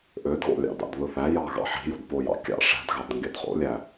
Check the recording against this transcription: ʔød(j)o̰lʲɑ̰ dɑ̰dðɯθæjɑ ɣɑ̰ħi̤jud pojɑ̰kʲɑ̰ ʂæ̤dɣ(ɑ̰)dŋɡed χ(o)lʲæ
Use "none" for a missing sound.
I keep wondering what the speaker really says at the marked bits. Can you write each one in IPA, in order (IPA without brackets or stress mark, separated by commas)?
ɣ, ɑ, o̰